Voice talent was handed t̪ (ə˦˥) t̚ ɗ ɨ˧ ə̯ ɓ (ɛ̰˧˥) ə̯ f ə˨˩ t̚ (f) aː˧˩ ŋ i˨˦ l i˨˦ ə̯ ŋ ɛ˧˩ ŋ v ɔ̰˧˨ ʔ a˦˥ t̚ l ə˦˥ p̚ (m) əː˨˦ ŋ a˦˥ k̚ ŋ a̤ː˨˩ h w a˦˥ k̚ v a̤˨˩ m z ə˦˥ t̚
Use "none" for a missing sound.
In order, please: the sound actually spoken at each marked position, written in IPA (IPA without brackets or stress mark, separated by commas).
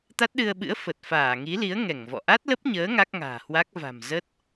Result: a˦˥, ɨ̰˧˥, f, ɲ